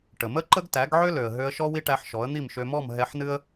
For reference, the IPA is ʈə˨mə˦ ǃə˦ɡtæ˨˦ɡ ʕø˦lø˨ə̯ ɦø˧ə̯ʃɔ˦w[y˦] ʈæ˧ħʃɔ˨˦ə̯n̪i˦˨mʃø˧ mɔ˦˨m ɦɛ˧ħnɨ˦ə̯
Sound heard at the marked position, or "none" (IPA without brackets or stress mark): i˦